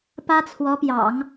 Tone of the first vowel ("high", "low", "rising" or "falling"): high